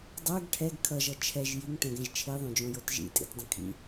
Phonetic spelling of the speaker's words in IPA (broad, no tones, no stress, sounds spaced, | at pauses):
dˤ o ɡ ʈʰ ɛ ɡ kʰ ʌ ʒ ʌ t͡ʃʰ ɛ ʒ j i ŋ t ɛ̃ ɡ ɛ̃ ʒ t͡ʃʰ i ðˤ õ d͡ʒ õ j o t ʒ ḭ tʼ ḭ t dˤ ə̃ kʰ ḭ